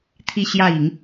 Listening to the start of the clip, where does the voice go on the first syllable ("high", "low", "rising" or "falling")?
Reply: falling